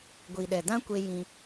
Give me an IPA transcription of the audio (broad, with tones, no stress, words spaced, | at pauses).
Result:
ɡʷi˨ɗɛ˨dã˦kʷe˧ jĩ˧